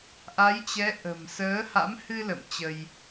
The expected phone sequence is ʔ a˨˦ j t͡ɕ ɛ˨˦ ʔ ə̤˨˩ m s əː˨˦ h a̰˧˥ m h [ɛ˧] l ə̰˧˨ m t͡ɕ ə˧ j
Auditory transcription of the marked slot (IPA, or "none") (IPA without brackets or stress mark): ɨ˧